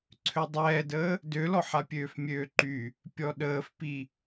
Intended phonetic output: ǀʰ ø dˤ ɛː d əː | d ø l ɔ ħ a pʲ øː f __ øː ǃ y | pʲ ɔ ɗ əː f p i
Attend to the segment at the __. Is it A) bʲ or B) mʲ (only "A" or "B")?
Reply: B